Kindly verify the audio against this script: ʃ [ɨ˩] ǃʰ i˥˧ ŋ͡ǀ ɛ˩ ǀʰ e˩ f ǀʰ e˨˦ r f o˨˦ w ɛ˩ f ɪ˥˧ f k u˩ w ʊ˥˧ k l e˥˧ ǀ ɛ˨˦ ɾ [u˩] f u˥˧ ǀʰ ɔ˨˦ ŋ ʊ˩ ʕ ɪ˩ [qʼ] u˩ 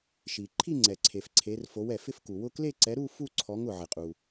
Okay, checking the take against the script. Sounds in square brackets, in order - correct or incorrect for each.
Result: incorrect: i˩, incorrect: u˥˧, correct

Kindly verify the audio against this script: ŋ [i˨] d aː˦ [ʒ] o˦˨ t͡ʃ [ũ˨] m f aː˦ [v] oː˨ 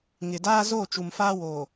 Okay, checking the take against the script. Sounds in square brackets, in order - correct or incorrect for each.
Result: incorrect: ɪ˨, incorrect: z, incorrect: u˨, incorrect: w

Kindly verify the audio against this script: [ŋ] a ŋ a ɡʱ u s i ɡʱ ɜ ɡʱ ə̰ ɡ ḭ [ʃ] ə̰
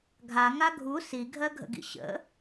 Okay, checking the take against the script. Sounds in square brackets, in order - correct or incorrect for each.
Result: incorrect: ɡʱ, incorrect: ɕ

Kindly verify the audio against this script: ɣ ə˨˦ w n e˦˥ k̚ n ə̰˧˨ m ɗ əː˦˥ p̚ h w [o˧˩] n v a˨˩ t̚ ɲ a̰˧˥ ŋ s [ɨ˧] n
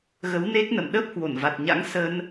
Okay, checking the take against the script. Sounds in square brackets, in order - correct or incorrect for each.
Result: correct, incorrect: ə˧

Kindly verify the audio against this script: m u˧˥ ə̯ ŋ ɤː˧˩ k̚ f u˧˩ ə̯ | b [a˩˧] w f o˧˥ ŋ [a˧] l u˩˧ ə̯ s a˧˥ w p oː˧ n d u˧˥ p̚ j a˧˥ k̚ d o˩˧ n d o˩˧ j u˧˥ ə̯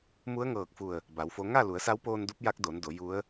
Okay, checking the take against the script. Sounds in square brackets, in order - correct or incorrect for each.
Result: correct, incorrect: a˥˨

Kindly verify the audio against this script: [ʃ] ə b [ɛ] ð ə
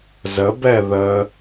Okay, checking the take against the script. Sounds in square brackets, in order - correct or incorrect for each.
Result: incorrect: z, correct

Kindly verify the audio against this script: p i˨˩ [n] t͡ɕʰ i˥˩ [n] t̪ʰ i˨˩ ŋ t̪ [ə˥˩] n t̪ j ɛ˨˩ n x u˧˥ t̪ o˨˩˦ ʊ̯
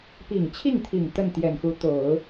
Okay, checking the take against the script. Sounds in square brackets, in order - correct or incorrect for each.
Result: incorrect: ŋ, incorrect: ŋ, correct

